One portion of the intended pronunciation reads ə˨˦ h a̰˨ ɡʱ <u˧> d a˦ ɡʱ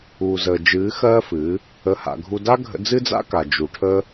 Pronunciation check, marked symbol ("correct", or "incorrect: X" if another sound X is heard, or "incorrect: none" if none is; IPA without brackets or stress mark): correct